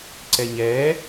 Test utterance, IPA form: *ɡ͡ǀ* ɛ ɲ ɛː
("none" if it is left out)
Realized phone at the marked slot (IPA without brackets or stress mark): ǀ